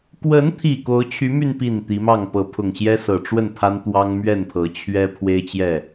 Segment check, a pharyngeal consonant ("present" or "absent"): absent